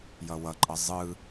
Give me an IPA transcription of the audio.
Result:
jʌwʌǃʼʌ zˤɯ

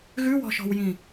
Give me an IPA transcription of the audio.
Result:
ɣʉwɔ̤ʃɔ̤wjĩ

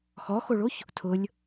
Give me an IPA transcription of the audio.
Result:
xɔxoɭoç | tʰʊlʲ

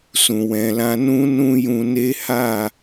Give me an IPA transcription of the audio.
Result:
sũ˨wɛ̃˨lã˧ nũ˦ nũ˦jũ˧ne˦ ha˦˨

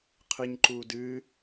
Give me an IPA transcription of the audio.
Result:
qʰɨɲǃuː dɨː

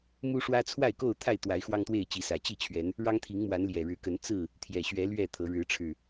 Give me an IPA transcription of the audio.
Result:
mu˦ʂwä˦ t͡sʰwa˥˨ɪ̯ko˥˨ʊ̯t̪ʰa˥˨ɪ̯ t̪wa˨˦ɪ̯xwɑ˦ŋt̪we˥˨ɪ̯t͡ɕi˨˦ sä˨˩t͡ɕi˥˨ t͡ɕʰɥɛ˨˦n | ɻɑ˦ŋt̪ʰi˨˦ŋmwa˨˦n ljɛ˨˩ɻɻ̩˨˦kə˨˦n t͡sɹ̩˥˨ | t̪ʰjɛ˨˩ɕɥɛ˨˦ lɥɛ˥˨t̪ʰɤ˨˦ ɻɻ̩˨˦ʈ͡ʂʰɻ̩˨˩

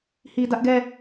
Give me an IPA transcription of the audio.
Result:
hi˨dä˦ʔɡɛ˦˨

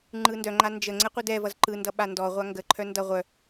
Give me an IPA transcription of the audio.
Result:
ŋ͡ǃɯndœ ŋ͡ǃand͡ʒə ŋ͡ǀɛqʷɯdɛvʌz ǃɯndʌ ɓandɔʁʷa ŋɡə ǃʰœndʌ ʁʷœ

